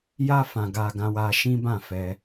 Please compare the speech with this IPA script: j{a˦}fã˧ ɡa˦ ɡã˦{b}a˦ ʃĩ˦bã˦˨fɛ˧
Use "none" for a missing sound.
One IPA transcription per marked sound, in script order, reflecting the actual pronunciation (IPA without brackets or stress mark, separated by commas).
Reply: a˦, w